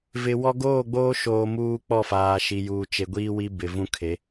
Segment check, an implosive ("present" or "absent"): absent